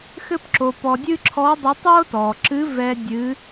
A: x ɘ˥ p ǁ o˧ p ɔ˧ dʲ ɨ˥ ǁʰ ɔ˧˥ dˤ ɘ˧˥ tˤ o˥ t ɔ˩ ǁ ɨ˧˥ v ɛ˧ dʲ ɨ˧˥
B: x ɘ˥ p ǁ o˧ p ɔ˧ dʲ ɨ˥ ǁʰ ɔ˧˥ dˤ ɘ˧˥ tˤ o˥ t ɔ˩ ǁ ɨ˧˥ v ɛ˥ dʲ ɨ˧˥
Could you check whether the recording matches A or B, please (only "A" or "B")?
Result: A